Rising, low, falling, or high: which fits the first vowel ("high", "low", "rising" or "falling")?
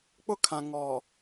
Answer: high